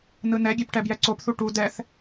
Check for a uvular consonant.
absent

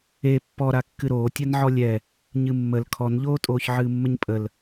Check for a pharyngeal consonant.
present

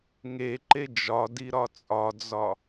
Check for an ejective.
present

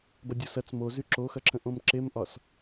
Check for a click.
present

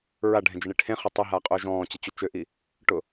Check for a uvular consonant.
present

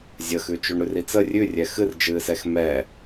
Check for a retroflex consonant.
present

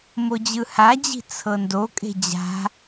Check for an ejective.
present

